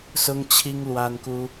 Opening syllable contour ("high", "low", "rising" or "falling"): high